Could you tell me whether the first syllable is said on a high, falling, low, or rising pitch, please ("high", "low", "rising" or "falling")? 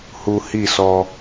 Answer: low